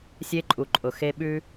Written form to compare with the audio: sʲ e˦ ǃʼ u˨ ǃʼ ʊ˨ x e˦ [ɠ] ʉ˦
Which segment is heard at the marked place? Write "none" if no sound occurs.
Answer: ɓ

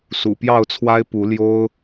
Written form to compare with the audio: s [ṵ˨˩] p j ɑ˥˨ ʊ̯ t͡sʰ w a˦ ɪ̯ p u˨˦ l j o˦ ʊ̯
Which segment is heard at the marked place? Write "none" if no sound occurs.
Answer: ṵ˨˩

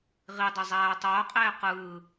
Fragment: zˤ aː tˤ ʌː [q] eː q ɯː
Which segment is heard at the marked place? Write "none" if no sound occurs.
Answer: qʼ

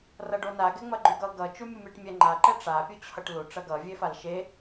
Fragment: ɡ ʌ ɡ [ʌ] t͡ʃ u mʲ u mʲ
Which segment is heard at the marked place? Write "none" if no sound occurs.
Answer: ʌ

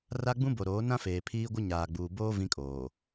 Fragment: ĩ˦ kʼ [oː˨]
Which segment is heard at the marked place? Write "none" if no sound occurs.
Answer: oː˨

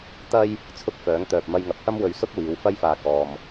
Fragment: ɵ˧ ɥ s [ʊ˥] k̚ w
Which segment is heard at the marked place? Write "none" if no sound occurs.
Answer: ʊ˥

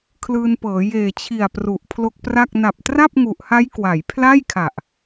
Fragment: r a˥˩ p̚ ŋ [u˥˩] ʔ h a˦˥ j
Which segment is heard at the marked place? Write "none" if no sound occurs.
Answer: u˨˩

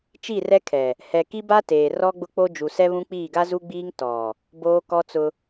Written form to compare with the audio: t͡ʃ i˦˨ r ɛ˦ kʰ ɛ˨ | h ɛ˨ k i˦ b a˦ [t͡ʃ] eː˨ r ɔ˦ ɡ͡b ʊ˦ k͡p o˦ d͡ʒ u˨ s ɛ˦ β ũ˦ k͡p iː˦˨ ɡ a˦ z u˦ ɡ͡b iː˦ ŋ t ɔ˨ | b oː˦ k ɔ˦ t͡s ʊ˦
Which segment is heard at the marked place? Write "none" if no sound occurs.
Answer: t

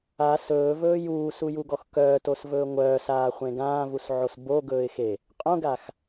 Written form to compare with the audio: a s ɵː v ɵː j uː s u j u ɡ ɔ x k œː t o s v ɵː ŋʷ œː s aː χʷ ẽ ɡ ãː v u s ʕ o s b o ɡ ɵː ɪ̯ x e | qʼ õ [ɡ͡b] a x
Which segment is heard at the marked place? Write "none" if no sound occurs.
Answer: ɡ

